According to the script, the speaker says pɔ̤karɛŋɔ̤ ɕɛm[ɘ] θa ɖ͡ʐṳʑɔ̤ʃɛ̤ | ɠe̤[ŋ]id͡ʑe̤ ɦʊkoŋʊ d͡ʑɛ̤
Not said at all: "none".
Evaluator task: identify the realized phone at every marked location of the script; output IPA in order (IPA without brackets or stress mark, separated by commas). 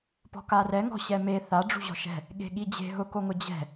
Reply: e, ɠ